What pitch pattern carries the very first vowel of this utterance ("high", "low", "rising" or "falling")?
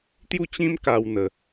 falling